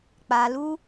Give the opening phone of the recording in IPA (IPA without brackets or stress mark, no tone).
k͡p